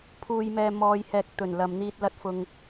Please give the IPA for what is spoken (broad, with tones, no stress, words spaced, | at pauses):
pʰuː˨jmɛː˨ mɔː˨jhɛː˨k̚t̪ɵ˨˩n lɐ˨mn̪iː˧t̚lɐ˧t̚ fʊ˧ŋ